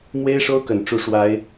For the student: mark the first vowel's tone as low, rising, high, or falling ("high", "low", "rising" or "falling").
high